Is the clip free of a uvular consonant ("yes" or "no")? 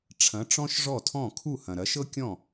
yes